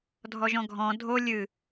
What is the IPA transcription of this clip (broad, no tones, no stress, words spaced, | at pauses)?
dʱɔʒɔ̃ɡʱɔ̃ dʱo lʲɨ